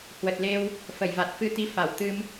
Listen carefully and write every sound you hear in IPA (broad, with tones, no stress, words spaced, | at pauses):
hwə˨˩t̚le˧w | fə˧˩jva˨˩t̚fɨ˧t̪i˧ fa˧˩wt̪ɨ˧m